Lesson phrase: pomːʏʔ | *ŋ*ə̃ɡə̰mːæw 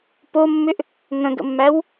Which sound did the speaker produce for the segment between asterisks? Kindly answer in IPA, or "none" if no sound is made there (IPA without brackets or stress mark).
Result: ŋ